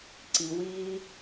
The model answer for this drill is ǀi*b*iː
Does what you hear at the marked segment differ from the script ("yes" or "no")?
yes